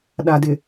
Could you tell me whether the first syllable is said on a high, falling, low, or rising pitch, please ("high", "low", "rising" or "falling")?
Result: low